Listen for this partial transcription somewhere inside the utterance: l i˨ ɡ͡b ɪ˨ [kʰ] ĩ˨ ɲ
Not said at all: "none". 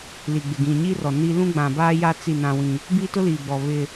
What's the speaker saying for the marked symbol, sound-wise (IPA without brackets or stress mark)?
ɡ